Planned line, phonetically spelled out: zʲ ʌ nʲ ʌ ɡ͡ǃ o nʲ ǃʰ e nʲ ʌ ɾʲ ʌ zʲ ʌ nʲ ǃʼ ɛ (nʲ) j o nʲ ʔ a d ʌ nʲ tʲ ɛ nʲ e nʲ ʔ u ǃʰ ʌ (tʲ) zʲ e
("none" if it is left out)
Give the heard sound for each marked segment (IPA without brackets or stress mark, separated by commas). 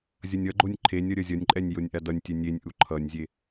nʲ, nʲ